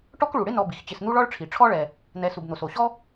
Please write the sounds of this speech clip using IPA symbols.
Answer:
ʈ ɔ˥ k ɭ u˩ ɽ ɪ˥ n ɔ˨ b i˩ x t͡ɕ ɪ˨ s n̪ u˥ ɭ ɔ˥ ɭ ʈ͡ʂʰ i˩ ʈ͡ʂʰ ɔ˥ ɭ ɛ˨ | n̪ ɛ˨ s u˩ b n̪ o˩ s o˩ ɕ ɔ˥

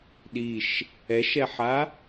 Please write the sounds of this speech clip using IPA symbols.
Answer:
ɗ i ʃ | ɛ ʃ ɛ ħ a

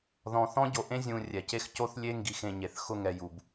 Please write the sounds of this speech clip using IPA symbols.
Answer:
ð ɔ̃˧ θ ɔ̃˦ ɟ o˧ ʔ ẽ˦ zʲ ũ˧ rʲ ɛ˨ c e˦ x c o˦ θ lʲ e˦ ŋ ɡ i˧ x ẽ˧ ɲ e˨ θ x ʊ˦ ŋ ɛ˧ j u˧ b

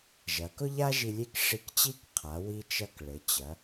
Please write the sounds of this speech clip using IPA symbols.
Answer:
ʒ ɐ˩˧ k ʊ˥ ʎ a˥ ʒ i˧ lʲ e˥˧ k ʂ i˧ k t͡ɕ i˥˧ k qʰ a˩˧ w i˧ t͡ʃ ɐ˧ k ɭ ɘ˩˧ t͡ɕ ɐ˩˧

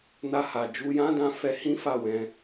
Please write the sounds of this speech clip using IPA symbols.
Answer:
n a˧ h a˨ d͡ʒ u˧ j ã˦ d ã˧ f ɛ˧ h ĩ˦ f a˦˨ w ɛ̃˧

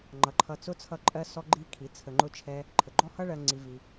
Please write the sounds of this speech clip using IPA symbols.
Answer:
ŋ͡ǃ ʌ˨˦ ǃʰ ʌ˧ t͡s ʊ˦ t͡sʰ ʌ˦ ǃʼ ɜ˦ s ɔ˦ ɡ͡ǃ i˦ kʰ i˨˦ t͡sʰ ə˧ ŋ͡ǃ ʊ˦ t͡ʃʰ ɛ˦ | ǃʰ ə˨ ɡ͡ǃ ɔ˦ h ʌ˦ ɭ ɜ˧ ŋ͡ǀ i˧ v i˧

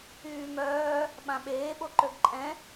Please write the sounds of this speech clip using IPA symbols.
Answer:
yː m œː | ɓ ã ɓ eː ɓ o ǃ ø ɡ ǃʼ ɛ̃

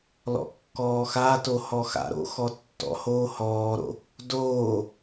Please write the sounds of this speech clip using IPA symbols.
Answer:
l ɔ̰ kː ɔː x a t o h ɔ x a̰ ɾ o̰ x ɔ tː ɔ̰ h oː h ɔː ɾ o̰ | d oː

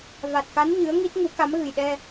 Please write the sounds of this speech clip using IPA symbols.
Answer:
v a˨˩ t̚ k a˧˥ n ɲ ɨ˧˥ ə̯ ŋ i˦˥ t̚ ŋ u˨˩˦ k a˧˥ m ɣ ɨ˨˩ j ɗ ɛ˧

